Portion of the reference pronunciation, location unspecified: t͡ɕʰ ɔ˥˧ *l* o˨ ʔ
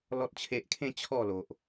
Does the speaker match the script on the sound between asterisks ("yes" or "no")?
yes